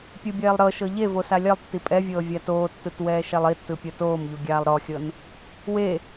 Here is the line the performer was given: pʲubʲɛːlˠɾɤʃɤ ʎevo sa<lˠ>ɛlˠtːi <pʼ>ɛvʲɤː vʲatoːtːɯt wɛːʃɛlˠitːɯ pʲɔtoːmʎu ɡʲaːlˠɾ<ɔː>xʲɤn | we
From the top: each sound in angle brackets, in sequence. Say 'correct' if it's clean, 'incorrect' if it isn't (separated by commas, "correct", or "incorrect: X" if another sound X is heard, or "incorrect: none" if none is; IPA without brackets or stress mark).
incorrect: lʲ, correct, incorrect: ɔ